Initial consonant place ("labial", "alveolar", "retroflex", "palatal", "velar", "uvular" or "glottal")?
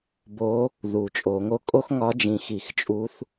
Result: labial